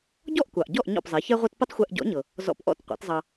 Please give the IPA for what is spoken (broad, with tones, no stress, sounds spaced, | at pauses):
ɟ ɔ˥˩ ʔ kʷ ɑ˩ ʔ ɟ ɔ˥˩ ʔ ɲ ɔ̰˥˩ p zˤ ɛ˩˥ ç ɛ˥ ʁʷ ɤ˥ t p ə˥ tˤ xʷ ɛ˧ ʔ ɟ ɔ̰˩˥ ɲ ɤ˩ | z ɔ̰˧ p ʔ ɔ̰˥˩ t qʷ ɛ̰˩˥ t zˤ ɑ˧